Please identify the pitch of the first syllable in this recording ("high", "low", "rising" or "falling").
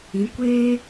rising